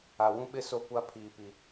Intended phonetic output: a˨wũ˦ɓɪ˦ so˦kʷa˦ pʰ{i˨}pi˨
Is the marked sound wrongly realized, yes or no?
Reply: yes